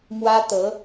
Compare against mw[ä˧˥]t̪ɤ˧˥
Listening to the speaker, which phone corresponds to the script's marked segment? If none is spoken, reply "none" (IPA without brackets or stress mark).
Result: ä˥